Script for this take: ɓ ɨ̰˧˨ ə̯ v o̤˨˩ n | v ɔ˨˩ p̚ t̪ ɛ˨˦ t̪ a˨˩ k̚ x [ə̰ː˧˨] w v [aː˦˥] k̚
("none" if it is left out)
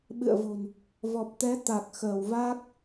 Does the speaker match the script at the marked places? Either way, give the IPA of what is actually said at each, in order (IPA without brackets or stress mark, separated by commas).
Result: əː˧˩, aː˦˥